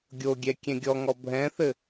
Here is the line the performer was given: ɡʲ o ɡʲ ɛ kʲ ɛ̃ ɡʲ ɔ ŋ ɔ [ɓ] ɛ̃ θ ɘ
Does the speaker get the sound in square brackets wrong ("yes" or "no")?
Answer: yes